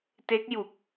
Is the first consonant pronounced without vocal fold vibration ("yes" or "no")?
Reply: yes